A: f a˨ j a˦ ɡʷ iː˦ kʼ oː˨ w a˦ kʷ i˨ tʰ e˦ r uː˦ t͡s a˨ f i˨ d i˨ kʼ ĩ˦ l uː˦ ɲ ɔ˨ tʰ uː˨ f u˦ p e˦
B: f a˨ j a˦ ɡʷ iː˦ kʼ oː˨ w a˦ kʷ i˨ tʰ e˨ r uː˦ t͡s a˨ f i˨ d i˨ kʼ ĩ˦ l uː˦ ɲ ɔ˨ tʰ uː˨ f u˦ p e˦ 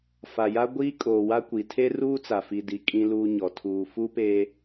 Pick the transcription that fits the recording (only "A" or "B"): A